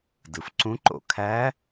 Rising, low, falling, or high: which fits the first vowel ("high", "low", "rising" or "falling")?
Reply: low